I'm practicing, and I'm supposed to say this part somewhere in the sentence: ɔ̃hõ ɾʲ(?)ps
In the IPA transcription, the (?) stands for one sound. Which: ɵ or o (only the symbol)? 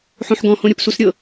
o